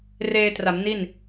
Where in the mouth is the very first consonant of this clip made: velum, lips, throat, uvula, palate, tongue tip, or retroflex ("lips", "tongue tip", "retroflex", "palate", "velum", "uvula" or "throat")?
tongue tip